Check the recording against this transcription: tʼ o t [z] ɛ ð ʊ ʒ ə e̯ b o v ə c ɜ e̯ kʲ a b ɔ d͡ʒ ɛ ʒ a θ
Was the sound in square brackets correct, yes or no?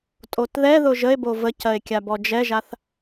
no